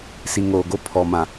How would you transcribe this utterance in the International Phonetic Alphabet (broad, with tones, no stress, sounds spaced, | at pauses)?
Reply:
s i˨ ŋ oː˨ ɡ o˦ pʰ ɔ˨ m ã˨